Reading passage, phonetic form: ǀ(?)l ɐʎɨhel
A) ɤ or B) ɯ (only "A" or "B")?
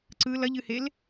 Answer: B